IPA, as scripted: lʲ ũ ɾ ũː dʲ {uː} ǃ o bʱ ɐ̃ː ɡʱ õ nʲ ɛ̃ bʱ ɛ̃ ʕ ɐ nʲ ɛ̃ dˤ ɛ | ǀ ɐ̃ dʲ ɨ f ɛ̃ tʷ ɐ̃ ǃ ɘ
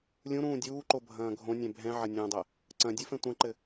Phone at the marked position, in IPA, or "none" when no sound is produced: uː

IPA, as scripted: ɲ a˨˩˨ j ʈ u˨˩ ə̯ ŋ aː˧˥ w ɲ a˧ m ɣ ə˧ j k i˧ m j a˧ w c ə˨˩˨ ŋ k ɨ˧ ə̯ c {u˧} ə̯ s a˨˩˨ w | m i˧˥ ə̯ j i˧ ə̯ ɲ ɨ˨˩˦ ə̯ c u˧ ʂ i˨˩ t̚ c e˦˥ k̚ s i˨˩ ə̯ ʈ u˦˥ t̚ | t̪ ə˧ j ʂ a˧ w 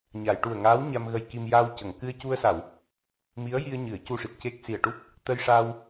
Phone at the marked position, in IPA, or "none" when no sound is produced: u˧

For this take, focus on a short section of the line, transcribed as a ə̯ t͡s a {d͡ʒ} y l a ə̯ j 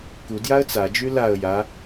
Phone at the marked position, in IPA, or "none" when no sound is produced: d͡ʒ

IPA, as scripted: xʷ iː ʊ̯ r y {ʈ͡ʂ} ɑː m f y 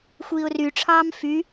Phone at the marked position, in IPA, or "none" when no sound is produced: ʈ͡ʂʰ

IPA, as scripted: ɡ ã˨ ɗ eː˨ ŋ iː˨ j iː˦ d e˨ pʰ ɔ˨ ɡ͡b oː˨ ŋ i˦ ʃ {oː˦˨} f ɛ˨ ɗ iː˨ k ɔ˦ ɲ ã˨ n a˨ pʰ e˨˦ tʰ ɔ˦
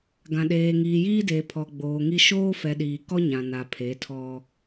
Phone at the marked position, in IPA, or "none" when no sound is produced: oː˦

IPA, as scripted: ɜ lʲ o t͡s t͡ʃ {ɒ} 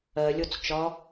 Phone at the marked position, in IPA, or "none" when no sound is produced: ɒ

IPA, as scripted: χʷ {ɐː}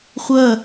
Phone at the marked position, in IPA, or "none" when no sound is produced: ɐ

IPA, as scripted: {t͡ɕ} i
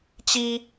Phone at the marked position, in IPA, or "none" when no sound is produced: t͡ɕ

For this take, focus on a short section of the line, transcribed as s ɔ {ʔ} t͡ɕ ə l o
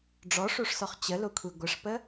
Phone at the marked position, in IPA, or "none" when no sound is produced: χ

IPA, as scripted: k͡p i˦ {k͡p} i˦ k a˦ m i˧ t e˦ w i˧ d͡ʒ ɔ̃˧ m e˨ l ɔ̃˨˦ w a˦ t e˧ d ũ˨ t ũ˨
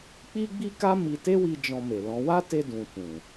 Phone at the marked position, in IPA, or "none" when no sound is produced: ɡ͡b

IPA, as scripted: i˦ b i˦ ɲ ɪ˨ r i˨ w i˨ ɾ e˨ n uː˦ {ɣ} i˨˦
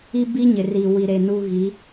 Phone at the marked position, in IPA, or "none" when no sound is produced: ɣ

